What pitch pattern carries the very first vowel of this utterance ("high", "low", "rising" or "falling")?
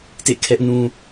falling